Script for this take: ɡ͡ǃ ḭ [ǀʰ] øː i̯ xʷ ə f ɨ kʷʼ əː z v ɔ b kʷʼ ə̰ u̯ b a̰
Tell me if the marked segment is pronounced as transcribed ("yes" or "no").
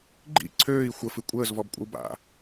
yes